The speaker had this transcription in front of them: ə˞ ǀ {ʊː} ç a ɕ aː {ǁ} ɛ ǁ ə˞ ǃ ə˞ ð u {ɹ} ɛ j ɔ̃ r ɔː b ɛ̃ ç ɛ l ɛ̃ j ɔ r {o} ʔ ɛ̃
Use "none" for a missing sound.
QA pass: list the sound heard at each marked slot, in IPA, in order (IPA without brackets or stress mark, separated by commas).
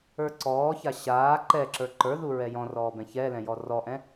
ɔː, ǃ, ɹ, ɔ